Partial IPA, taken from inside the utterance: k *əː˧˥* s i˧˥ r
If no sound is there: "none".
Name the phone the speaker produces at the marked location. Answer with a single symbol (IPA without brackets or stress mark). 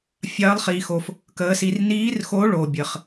əː˧˥